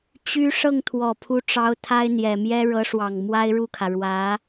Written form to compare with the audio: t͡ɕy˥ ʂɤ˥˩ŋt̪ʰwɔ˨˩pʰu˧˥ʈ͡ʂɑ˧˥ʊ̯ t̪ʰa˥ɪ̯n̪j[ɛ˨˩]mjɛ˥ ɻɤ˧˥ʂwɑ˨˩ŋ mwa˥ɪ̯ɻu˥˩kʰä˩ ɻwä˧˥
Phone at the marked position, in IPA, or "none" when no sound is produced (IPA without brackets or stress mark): ɛ˨˩